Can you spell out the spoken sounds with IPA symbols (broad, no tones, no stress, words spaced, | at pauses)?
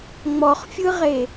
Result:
ŋ͡mɔχfʲɯʁe